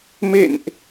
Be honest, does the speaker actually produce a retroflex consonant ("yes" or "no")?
no